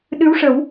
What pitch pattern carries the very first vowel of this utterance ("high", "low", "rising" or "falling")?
rising